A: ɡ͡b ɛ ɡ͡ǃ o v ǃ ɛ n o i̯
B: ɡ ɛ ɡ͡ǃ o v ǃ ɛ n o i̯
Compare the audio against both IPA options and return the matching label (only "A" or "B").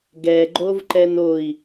B